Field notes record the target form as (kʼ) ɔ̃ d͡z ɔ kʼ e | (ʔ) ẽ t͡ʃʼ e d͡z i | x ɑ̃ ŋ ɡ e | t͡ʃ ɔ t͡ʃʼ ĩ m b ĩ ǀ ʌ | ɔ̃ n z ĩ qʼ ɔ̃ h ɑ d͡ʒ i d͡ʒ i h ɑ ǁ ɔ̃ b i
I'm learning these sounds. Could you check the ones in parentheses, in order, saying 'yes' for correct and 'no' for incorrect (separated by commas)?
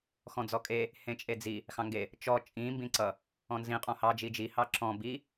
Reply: no, no